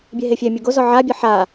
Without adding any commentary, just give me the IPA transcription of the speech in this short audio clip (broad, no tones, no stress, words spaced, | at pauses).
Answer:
bʲeɦefʲɛmʲo ɡozɔ ʕabʲɤ ħa